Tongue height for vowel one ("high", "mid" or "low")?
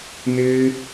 high